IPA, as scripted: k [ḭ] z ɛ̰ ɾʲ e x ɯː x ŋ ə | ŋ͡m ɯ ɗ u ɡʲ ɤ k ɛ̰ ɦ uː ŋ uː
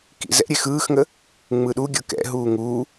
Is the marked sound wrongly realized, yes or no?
no